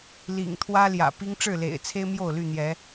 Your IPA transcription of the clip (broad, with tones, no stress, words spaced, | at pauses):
lḭ˨˩ŋ t̪ʰwä˦ljä̰˨˩pi˦ŋ ʈ͡ʂɻ̩˥˨lḛ˨˩ɪ̯t͡sʰe˦ɪ̯ mjo˥˨ʊ̯ly˥˨ n̪jɛ˨˦